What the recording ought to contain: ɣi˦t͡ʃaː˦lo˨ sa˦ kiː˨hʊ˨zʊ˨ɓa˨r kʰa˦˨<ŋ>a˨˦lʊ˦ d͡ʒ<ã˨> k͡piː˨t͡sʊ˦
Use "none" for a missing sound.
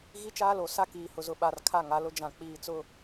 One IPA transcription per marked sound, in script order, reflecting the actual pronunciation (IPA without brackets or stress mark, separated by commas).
ŋ, ã˨